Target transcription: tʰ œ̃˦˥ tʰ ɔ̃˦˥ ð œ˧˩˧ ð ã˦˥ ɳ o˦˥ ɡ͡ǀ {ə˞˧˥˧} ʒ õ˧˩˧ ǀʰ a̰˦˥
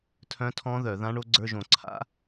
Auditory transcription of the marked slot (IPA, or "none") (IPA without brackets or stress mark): ə˞˧˥˧